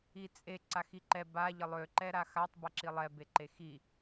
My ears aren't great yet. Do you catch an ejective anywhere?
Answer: yes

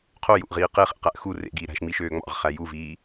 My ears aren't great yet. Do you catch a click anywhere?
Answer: no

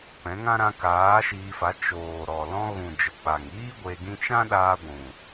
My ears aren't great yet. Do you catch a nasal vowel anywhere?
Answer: yes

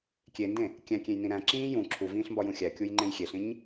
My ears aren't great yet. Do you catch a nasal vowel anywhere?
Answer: yes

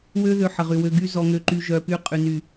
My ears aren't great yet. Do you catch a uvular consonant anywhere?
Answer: yes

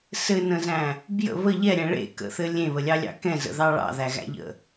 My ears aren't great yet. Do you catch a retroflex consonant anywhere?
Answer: yes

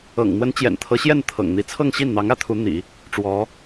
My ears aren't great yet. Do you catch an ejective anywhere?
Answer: no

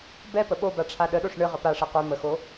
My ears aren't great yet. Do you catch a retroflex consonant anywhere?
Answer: yes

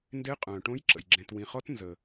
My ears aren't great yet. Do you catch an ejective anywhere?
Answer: yes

